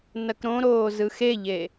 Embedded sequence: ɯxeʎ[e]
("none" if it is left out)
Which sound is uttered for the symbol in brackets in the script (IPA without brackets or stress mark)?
e